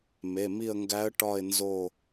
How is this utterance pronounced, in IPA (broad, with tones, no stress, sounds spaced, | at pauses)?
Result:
m e˩˧˩ m i˦˨ ə̯ ŋ ɡ æ˧˥ ə̯ ʈ ɒ˦˨ ɪ̯ n z o˦˨